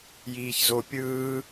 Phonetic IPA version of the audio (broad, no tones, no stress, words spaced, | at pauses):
jiːçzo pʲɯː